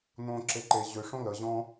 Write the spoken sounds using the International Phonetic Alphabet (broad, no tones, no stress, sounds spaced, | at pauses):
n õ ǁ e ǃ e ʑ ø ʂ õ l ə ʑ ɔ̃